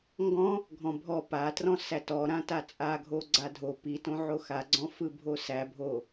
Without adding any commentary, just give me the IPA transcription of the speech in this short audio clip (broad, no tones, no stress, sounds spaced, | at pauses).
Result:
ŋ ɡ ɔ̃ | ɡʱ ɔ̃ bʱ ɔ p a t r ɔ̃ s æ t ɔ ɾ ã t a t͡sʼ a ɡʱ o ɡ͡ǀ a dʱ o p i t õ ʕ o x a ɡ͡ǀ ɔ̃ f ɯ bʱ o s æ bʱ o